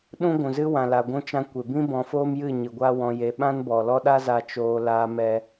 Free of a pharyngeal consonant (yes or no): yes